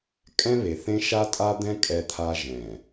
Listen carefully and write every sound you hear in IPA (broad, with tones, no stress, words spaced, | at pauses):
kʼɛ̃˦βe˨θẽ˦ ʃa˦tʼa˦d̪ɛ̃˦ kʼɛ˦t̪ʰa˦ ʒɛ̃˨